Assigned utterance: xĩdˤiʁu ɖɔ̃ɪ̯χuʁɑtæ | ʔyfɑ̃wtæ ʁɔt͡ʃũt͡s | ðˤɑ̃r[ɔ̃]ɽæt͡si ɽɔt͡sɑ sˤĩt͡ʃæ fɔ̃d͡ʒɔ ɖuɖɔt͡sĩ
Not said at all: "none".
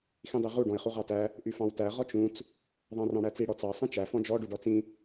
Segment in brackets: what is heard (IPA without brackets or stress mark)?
ɑ̃